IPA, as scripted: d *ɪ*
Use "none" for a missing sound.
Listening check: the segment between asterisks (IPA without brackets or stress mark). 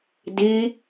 i